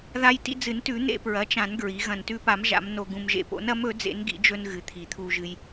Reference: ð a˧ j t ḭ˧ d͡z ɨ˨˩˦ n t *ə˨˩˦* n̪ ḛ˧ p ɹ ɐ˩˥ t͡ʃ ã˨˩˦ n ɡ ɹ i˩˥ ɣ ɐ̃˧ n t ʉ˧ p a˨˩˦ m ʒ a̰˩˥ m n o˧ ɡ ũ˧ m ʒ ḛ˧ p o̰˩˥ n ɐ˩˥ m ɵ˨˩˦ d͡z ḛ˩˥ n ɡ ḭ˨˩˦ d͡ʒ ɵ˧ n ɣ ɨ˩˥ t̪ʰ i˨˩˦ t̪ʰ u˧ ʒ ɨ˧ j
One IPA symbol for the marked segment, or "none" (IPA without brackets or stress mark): ʉ˨˩˦